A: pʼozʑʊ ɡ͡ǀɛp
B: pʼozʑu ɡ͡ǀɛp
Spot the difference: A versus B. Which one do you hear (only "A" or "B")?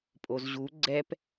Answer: B